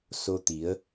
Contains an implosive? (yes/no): no